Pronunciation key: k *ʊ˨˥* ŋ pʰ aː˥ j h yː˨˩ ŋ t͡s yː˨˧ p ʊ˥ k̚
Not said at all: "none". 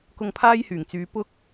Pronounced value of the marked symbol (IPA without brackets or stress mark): ʊ˧